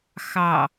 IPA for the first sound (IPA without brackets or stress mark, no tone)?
x